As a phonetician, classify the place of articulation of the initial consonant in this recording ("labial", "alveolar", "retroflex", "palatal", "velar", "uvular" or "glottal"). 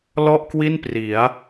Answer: alveolar